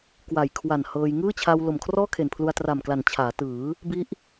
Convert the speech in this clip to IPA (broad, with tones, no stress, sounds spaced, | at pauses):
k w a˨˩ j kʰ w a˨˩ n h ɤː˧ j ŋ ɯː˥˩ t͡ɕʰ a˧ w l o˨˩ m kʰ r ɔː˥˩ kʰ e˨˩ n pʰ l u˧ a̯ t r a˨˩ m k l a˨˩ n t͡ɕʰ aː˩˦ t ɯː˩˦ | b i˦˥ ʔ